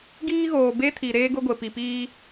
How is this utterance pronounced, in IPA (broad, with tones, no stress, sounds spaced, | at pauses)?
ɡ iː˦ ɣ oː˨ b e˦ tʰ i˨ ɾ eː˦ ɡ ʊ˦ ɡʷ e˨ p i˨ p iː˦